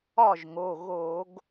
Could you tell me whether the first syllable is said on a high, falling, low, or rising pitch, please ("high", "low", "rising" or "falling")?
falling